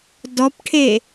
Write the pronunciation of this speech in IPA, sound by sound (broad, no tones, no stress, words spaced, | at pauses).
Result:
dɔpʈʰe